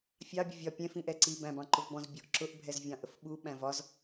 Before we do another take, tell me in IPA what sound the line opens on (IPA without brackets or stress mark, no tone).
fʲ